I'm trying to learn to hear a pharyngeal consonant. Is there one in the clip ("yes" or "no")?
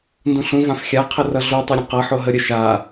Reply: yes